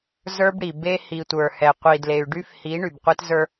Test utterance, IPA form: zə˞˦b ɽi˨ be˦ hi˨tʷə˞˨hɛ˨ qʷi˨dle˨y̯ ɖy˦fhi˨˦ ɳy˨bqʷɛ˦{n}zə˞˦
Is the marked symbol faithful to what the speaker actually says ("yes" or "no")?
no